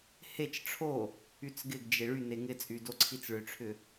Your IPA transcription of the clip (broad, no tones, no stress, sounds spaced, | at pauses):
h e t͡ʃ ʈ͡ʂʰ o | y t͡s ɡ ɪ ɡ d͡ʒ e ɭ y n e ŋ ɪ t͡sʼ y d o ǀʰ i t͡s ɭ ʏ ʈ͡ʂʰ ʏ